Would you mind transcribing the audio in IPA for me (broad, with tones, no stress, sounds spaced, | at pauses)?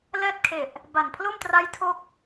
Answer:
l ɛː˥˩ t̚ kʰ e˨˩ ʔ | b a˨˩ n pʰ l o˥˩ m t r a˦˥ j tʰ o˥˩ k̚